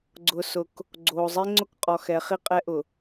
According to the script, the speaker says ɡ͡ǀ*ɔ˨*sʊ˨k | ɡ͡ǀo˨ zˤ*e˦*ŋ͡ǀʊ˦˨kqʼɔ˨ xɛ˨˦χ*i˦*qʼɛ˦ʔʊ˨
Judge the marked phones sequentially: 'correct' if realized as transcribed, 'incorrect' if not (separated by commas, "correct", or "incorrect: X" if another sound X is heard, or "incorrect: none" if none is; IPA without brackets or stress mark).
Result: incorrect: ʊ˨, correct, correct